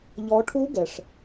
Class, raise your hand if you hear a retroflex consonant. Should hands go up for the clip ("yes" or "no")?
yes